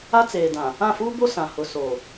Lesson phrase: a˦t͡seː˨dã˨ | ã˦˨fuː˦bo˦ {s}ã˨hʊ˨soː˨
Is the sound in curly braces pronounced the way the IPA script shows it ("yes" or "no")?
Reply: yes